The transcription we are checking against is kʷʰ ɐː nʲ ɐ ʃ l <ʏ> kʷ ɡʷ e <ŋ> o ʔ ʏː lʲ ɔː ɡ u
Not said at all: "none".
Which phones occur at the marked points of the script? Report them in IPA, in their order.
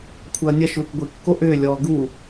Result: ʏ, kː

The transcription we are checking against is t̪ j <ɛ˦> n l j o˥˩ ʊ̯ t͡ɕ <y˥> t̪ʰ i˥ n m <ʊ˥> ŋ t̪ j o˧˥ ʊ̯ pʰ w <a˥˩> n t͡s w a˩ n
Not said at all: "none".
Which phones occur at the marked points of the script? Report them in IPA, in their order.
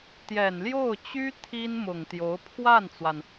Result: ɛ˨˩, y˥, ʊ˨˩, a˥˩

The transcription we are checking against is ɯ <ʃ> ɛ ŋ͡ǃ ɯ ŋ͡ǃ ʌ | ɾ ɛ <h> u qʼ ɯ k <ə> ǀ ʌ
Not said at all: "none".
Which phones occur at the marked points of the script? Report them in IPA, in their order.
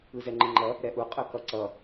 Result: z, ʔ, ʌ

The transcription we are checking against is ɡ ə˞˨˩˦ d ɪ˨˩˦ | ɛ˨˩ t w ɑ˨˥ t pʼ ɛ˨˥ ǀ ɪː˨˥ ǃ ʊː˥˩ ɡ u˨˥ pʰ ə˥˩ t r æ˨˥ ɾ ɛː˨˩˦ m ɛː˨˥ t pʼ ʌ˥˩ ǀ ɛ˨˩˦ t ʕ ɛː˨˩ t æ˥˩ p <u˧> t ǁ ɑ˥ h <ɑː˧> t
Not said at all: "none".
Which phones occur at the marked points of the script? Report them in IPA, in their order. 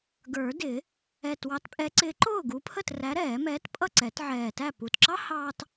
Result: u˨˩, ɑː˧

